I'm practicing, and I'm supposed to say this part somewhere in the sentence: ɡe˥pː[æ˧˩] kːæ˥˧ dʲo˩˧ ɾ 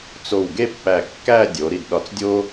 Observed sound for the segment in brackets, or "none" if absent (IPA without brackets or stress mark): æ˧˩